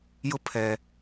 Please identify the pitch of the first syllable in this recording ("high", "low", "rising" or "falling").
high